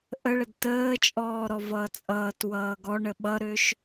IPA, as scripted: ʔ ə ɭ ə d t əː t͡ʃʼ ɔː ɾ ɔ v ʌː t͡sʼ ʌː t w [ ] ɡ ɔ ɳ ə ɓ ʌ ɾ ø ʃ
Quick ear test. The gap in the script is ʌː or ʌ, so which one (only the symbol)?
ʌː